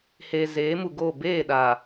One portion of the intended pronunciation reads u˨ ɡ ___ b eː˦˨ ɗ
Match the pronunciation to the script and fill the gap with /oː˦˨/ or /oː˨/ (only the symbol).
oː˦˨